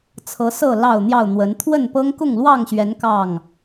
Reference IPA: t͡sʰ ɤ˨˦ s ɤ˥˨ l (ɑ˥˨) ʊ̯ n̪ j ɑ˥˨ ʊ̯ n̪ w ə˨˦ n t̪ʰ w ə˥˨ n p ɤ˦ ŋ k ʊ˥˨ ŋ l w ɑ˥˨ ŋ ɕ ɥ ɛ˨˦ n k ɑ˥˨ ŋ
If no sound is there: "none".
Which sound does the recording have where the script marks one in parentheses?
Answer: ɑ˥˨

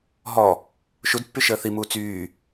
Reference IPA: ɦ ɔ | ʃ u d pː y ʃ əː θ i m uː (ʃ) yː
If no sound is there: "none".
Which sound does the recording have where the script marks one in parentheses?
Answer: t͡s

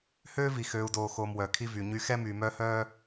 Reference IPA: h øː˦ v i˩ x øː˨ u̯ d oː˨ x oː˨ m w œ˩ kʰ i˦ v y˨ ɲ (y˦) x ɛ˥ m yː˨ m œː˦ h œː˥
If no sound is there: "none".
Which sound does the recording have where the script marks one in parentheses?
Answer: y˦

